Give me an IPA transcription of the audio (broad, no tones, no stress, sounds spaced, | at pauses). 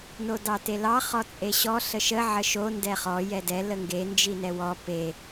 n o d ɑ t e l ɑ χ ɔ t͡sʼ e ɕ ɔ ɬ ə ʃ ə ʕ ə ʃ o n d ɛ χ ɔ j ɛ d ɛ l ə ŋ ɡ e n d͡ʒ i n ɛ w ɔ p e